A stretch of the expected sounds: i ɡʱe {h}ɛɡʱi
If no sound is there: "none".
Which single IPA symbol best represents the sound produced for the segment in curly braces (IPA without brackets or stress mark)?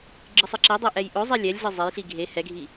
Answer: h